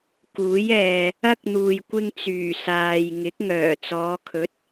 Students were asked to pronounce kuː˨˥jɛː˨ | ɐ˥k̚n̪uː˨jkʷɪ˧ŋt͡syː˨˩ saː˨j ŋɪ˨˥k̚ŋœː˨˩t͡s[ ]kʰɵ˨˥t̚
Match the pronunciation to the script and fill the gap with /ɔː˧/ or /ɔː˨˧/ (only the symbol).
ɔː˨˧